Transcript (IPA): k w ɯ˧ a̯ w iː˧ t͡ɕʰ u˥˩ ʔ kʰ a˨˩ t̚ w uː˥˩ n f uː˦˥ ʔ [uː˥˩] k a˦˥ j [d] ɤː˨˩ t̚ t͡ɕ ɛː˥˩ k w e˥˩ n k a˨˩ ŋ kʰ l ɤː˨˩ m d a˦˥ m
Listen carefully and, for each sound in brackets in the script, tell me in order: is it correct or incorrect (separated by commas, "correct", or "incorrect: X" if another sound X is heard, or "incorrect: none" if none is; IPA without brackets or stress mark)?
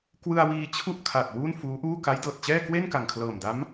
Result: correct, correct